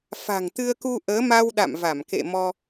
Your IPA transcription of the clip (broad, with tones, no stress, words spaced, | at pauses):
fa̤˨˩ŋt̪ɨ˧ə̯ku˧ ʔəː˨˦ma˧wɗa̰˧˨mva˧˩m kḛ˧˨ mɔ˧